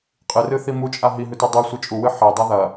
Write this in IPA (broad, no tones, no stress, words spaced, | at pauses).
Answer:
qʼɨrɨθi mut͡ʃʼa ɦiɦʉte dˤusʷɨ t͡ʃʼuwɨ ħedˤɐ ðɐ